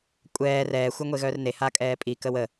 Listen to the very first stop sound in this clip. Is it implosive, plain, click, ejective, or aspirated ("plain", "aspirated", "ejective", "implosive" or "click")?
ejective